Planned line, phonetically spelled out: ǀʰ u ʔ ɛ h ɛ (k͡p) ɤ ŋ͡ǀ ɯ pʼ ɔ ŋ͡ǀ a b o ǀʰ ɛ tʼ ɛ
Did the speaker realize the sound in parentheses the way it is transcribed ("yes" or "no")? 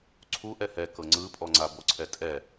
no